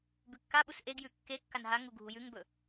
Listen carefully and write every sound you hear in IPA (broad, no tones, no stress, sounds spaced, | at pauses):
b ʉ kː a ɓ u s ʔ e ɡ j ʉ kː e kː a n ɦ a ŋ u ɡʱ u j ʉ ŋ b ɵ